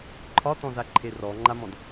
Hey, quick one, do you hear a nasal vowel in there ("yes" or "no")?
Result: yes